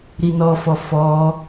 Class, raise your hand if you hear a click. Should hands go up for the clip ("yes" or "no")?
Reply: no